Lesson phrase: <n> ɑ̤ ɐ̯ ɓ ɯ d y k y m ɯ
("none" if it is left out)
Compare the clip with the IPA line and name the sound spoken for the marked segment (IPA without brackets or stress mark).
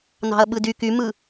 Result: n